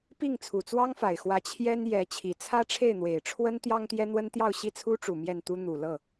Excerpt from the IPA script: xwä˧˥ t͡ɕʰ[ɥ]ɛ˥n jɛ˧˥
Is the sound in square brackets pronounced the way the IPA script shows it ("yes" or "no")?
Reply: no